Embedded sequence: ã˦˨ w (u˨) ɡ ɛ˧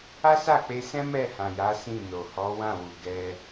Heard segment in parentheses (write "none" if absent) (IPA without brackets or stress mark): u˨